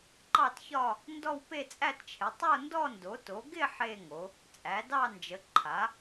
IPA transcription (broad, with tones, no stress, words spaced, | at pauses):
ǃɑ˥˧tçɒ˥˧ | ndɔ˥˧wpe˥˧t͡sʼæ˥˧tt͡ʃʰɪ˩˥ tˤo˥˧ndɔ˥˧ndo˩˥to˩˥ ɡɪ˥˧ ħe˥˧ŋo˩˥ | t͡sʼæ˩˥dɑ˥˧nd͡ʒə˩˥ ǃʰa˩˥